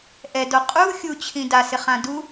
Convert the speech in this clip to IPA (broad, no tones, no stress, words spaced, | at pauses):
ʔɛdo qʼu xʲut͡ɕʰĩ dasɪχã du